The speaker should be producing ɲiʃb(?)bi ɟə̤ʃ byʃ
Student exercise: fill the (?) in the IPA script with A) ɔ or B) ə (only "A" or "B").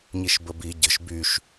B